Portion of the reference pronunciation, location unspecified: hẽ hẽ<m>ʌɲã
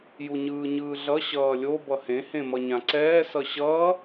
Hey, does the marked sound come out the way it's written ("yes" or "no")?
yes